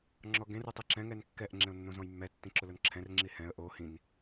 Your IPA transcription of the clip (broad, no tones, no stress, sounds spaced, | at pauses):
ŋ͡ǁ ɔ ɡ ẽ r u tˤ i ǁ ɛ̃ ŋ ɛ n kː ɛ ʔ ŋ͡ǁ ẽ ʊ̯ nː õ z ɔ̃ j mː ɛ tː ĩ ǁ ʊ l ʊ n ǁʰ ɛ̃ r ŋ͡ǁ i h ɛ̃ ə̯ ʔ o h ĩ n